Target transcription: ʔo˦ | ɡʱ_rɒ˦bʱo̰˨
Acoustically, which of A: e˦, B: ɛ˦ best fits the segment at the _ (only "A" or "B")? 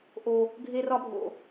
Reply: A